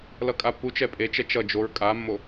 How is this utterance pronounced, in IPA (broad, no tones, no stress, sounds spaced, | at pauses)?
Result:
l ʌ kʼ a pː u t͡ʃ ɛ pʼ e t͡ʃ ɛ t͡ʃ ʌ d͡ʒ o ɹ kʼ a mː o